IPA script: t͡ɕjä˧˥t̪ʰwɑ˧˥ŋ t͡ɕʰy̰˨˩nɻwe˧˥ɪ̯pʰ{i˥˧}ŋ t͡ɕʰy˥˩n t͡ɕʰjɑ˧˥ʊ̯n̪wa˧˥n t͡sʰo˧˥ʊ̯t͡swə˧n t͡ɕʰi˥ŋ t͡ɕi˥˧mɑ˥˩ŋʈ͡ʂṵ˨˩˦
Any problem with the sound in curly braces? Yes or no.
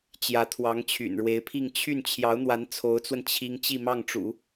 no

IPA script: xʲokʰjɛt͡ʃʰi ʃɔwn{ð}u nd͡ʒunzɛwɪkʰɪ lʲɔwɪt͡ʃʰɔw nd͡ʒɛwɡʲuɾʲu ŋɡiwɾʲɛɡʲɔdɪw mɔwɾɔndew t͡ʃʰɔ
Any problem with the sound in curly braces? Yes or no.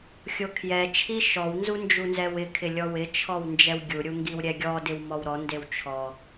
yes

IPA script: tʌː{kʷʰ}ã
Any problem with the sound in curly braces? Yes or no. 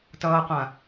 yes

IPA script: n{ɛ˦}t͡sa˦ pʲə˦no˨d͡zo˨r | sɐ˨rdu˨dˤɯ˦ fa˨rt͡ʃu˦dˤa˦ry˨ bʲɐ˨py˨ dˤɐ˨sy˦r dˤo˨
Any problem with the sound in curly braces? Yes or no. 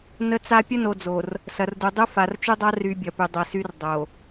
yes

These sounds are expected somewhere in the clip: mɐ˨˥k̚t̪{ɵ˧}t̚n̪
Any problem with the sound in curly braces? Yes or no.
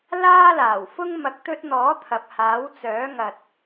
no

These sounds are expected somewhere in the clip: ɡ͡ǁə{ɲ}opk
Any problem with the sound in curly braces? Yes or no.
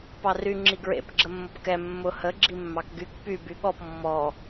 yes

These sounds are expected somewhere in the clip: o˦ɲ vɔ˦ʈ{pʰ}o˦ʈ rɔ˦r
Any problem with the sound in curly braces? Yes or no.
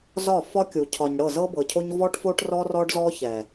yes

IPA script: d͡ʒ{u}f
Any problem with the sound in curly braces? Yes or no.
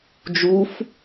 no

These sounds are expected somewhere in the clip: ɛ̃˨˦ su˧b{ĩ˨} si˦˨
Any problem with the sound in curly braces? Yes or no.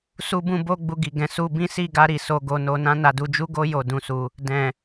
yes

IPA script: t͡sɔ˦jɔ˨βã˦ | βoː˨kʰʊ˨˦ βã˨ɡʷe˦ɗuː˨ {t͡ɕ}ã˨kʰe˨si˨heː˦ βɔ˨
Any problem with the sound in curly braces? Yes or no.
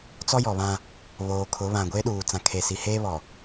yes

